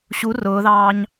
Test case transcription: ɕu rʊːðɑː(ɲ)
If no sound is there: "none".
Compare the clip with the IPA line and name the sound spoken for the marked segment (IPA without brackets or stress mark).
ɲ